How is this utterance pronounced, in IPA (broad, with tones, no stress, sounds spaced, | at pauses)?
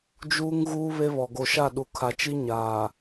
d͡ʒ uː˦ ŋ ɣ uː˦ β e˦ β ɔ˨ ɡ o˨ ʃ a˦˨ ɗ u˨ kʰ a˨ t͡ʃ i˦ ɲ a˨